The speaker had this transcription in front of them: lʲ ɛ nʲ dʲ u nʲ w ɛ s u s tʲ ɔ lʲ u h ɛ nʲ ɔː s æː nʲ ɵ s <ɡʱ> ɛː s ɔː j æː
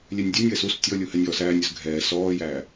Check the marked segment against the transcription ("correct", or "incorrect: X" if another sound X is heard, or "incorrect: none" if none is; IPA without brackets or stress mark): correct